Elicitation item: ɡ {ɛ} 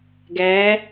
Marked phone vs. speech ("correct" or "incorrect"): incorrect